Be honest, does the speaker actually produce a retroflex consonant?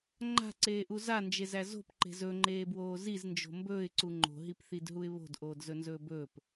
no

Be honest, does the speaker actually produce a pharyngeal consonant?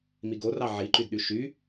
yes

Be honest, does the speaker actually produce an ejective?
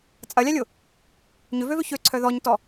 yes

